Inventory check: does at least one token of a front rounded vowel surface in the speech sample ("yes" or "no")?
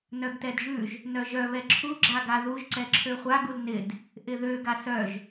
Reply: yes